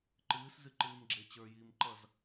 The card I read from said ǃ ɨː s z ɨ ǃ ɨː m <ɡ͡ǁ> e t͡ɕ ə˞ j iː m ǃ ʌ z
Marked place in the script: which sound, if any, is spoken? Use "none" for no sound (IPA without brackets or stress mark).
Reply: ɡ͡ǁ